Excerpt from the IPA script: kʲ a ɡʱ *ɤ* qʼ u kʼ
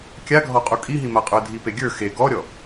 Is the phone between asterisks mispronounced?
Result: yes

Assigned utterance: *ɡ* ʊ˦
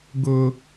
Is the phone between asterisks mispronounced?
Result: no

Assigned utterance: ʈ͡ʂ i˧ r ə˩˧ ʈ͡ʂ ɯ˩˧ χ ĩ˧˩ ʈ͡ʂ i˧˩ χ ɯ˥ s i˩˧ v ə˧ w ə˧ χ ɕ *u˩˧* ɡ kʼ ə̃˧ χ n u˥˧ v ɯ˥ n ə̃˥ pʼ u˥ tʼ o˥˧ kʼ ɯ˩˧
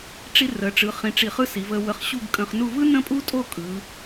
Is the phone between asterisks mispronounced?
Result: yes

